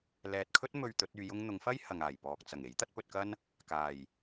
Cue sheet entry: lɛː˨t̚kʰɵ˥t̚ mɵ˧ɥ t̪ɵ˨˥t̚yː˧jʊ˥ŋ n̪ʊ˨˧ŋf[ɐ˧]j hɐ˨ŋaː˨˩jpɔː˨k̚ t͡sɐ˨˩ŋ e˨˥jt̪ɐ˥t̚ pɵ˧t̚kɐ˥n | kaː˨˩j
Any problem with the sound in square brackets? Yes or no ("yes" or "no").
yes